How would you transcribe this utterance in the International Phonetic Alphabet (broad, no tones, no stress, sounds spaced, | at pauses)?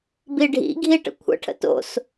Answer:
b i ɖʱ ḭ ɡʱ i ʈ ə̰ kʷʰ ə̰ ʈʰ ə̰ t o̰ s